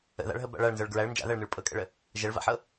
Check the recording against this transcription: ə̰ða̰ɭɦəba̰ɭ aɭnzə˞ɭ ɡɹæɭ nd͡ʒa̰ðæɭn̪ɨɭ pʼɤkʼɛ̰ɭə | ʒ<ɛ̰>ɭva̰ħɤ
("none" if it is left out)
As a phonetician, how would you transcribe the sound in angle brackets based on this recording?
ɛ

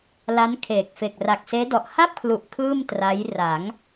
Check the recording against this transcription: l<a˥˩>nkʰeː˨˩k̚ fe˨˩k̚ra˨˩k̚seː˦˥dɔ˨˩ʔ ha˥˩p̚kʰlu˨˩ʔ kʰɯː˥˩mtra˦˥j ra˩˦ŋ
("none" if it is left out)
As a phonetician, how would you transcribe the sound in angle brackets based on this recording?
a˦˥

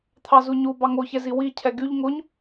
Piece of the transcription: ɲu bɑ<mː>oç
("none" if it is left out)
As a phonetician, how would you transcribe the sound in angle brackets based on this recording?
ŋ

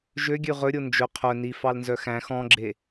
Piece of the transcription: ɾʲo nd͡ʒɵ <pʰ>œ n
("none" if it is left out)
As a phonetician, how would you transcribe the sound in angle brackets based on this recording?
qʰ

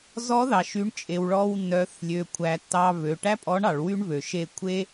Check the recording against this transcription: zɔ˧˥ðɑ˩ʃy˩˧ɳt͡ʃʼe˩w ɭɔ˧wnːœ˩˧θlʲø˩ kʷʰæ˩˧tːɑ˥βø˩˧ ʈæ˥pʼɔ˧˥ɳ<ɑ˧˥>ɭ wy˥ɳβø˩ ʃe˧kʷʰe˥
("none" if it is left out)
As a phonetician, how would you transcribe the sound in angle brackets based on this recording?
ɑ˩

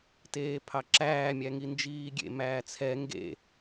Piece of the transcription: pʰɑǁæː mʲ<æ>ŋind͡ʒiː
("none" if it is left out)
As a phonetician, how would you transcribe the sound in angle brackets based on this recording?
æ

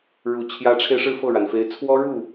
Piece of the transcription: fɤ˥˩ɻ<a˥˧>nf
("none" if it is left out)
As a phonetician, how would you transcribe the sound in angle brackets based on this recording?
a˩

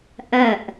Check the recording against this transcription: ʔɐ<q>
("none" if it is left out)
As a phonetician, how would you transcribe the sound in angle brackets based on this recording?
ʔ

